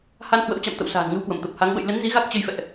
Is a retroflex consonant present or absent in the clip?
absent